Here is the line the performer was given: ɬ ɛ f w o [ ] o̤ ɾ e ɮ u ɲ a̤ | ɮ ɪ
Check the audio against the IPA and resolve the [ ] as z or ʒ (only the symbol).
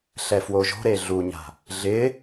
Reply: ʒ